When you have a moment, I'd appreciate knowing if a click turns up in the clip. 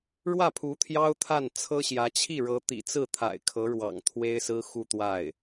no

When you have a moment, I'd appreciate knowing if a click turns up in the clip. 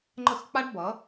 yes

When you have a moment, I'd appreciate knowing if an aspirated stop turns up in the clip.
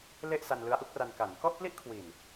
yes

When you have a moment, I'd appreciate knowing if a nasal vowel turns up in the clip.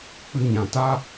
yes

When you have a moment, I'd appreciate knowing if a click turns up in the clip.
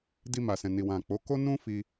no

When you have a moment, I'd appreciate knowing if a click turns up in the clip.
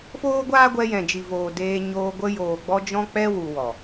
no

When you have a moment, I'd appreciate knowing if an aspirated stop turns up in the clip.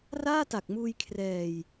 yes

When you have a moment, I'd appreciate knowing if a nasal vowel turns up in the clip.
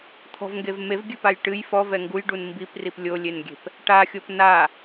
no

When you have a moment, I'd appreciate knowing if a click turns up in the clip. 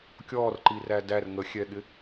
yes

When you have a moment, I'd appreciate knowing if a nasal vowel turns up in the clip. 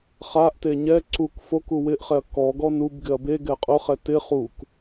no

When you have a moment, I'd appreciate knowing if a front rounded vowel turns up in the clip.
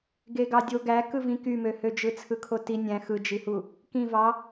yes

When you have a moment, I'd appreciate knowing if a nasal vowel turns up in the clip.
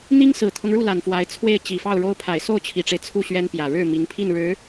no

